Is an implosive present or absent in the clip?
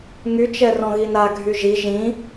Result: absent